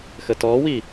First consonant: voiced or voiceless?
voiceless